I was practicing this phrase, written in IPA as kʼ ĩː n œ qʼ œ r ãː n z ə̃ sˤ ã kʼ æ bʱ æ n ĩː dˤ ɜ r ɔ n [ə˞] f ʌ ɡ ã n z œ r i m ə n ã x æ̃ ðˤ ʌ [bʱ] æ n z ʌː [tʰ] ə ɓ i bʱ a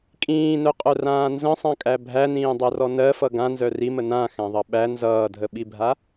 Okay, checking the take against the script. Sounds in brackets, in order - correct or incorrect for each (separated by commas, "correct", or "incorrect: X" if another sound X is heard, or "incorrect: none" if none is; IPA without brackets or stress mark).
incorrect: ɜ, incorrect: ɓ, incorrect: dʱ